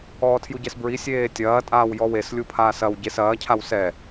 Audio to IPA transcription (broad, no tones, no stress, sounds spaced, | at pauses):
ɔː tʰ j u ɟ ɛ s b ɹ i sʲ eː tʲ ɐː tʼ aː w j ɔ w e s lʲ u pʰ aː s ɐ w ɟ e s ɐː cʰ a w s ɛ